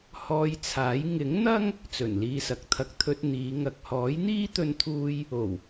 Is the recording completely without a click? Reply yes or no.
yes